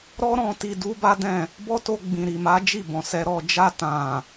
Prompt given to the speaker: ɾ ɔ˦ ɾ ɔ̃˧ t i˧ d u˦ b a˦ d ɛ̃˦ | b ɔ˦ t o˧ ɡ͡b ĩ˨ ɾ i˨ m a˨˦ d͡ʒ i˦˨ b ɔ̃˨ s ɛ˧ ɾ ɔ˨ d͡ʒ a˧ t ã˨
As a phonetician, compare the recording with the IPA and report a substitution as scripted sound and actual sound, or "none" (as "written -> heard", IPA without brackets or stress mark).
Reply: ɛ̃˦ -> ɛ̃˦˨